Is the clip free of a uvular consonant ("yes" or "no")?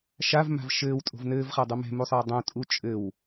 no